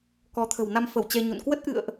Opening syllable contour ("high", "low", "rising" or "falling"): rising